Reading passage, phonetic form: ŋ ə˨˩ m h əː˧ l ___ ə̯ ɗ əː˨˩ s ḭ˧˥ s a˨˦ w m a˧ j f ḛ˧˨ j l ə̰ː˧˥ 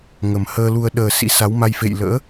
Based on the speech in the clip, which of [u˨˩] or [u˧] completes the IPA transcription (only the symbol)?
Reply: u˧